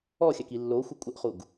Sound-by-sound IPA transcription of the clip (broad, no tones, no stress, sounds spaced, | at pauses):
ɔ xʲ a k i lː o xʷ ɪ kʷʼ ɪ ʔ χ u ɡ